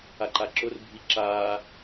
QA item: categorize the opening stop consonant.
click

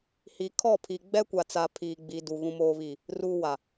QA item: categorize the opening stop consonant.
aspirated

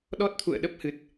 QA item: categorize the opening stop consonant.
implosive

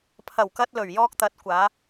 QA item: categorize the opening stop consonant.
aspirated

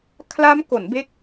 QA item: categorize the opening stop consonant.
aspirated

